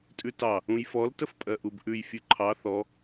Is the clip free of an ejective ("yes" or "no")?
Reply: no